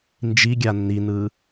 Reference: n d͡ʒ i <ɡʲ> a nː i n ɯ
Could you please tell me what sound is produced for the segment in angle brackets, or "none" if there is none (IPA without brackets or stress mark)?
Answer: ɡʲ